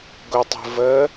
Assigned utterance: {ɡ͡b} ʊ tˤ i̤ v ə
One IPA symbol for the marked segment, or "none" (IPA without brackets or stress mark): ɡ